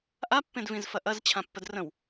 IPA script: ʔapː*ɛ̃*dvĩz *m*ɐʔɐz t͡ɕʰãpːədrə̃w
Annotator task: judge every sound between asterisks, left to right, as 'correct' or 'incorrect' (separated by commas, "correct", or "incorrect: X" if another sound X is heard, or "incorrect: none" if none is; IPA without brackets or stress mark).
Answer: incorrect: ẽ, incorrect: f